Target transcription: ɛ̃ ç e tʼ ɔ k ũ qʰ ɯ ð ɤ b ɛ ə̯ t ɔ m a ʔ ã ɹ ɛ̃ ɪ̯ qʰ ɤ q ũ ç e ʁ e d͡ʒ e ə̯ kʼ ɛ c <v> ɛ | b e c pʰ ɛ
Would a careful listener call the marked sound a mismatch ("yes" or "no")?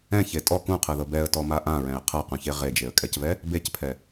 no